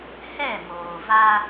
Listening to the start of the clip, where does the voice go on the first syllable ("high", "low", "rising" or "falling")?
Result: falling